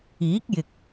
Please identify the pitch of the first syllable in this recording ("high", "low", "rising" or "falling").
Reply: rising